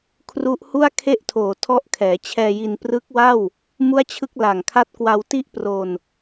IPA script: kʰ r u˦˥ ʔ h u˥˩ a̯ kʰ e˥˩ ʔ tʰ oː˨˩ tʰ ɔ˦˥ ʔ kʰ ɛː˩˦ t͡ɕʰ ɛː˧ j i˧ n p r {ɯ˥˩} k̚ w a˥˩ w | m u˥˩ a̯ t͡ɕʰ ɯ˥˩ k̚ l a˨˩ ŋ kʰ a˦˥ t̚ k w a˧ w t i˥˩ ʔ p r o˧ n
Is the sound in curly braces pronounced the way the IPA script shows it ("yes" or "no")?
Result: no